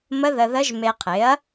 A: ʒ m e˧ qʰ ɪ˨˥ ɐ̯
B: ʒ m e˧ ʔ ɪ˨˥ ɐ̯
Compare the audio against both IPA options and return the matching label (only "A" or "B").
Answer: A